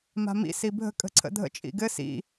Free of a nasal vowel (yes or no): yes